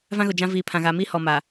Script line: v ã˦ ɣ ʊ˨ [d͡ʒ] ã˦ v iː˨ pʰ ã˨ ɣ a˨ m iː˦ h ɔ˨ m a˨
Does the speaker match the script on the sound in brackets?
yes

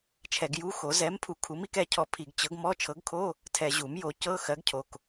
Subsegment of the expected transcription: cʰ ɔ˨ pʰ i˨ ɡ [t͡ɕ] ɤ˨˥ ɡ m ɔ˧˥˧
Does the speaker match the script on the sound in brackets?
yes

